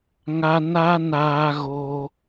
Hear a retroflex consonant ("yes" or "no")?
no